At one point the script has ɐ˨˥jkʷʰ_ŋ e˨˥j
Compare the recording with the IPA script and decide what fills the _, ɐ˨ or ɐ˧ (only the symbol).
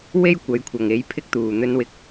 ɐ˨